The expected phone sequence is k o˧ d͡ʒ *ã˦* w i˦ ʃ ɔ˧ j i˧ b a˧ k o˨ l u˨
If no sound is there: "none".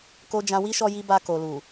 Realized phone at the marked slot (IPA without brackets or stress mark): ã˧